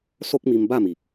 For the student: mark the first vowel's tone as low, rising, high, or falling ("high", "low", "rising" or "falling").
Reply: high